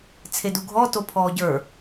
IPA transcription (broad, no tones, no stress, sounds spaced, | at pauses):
t͡sʰ e d u ɡʱ ɔ t o pʰ ɔː ɟ ə˞